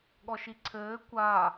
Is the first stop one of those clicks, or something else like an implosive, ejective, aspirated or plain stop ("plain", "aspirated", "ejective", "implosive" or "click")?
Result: implosive